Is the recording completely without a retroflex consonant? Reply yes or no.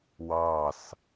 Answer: yes